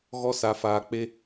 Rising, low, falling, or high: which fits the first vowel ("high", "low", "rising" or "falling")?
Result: high